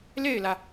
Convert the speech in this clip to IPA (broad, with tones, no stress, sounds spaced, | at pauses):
l e˥˩ ɪ̯ l ä˩